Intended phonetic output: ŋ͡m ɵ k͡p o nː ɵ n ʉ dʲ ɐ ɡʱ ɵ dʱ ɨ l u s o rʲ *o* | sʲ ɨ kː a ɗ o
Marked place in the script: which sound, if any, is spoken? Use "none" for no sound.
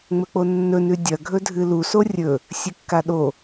ɵ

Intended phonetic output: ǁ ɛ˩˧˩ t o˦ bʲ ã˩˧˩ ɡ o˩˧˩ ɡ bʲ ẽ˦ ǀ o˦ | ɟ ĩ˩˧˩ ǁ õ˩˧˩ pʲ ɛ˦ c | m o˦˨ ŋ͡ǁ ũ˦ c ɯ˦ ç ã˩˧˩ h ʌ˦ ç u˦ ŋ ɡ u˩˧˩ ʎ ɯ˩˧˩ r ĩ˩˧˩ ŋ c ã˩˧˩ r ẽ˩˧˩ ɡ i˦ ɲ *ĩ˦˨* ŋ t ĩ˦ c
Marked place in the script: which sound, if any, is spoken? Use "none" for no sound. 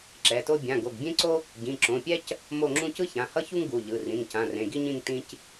ĩ˦˨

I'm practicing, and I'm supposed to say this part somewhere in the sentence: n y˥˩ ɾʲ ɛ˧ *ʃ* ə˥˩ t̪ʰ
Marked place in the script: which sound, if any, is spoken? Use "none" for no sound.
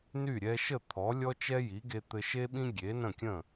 ʃ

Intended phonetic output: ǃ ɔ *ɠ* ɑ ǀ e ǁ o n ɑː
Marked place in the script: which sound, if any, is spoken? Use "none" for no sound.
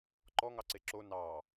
ŋ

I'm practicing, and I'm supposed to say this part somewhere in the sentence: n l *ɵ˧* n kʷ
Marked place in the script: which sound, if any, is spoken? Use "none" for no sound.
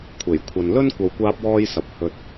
ɵ˥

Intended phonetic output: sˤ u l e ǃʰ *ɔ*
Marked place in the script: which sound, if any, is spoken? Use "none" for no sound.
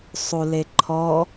ɔ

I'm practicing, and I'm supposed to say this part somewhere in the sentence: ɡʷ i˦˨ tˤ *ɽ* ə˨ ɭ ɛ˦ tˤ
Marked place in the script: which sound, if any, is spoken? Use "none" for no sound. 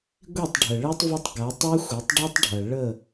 ɖʱ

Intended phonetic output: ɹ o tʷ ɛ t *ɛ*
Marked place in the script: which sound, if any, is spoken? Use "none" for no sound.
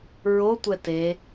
e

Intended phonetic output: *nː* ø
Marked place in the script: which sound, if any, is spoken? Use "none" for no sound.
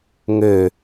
ŋ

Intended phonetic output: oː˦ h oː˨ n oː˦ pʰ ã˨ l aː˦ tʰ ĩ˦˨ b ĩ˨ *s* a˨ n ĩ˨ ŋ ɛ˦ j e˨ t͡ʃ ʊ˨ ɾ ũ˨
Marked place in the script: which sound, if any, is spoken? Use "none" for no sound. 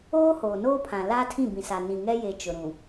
s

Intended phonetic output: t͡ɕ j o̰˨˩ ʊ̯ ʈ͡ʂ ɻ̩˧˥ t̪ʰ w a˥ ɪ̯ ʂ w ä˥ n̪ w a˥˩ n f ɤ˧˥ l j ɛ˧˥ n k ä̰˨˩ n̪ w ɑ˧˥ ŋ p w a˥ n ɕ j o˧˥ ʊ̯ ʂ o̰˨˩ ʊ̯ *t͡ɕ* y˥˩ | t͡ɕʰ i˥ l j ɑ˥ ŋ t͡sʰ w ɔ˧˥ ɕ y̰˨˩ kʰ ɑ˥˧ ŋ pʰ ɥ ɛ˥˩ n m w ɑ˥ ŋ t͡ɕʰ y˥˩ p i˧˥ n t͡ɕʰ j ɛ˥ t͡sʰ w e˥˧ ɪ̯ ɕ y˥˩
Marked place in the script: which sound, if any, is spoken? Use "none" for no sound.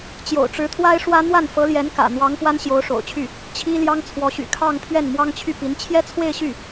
t͡ɕʰ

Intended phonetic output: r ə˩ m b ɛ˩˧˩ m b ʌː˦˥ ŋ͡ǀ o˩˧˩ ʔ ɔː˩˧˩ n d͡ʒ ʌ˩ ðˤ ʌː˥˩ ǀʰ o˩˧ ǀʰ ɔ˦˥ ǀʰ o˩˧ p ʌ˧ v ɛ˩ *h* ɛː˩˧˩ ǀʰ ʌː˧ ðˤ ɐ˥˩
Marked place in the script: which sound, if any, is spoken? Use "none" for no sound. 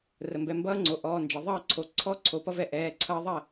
ʔ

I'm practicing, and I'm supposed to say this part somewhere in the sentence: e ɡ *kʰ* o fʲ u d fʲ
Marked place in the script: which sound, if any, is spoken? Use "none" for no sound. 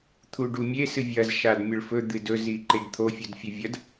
t̪ʰ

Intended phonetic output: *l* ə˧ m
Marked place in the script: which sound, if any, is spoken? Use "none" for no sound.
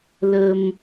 l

